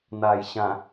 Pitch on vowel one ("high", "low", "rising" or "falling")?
low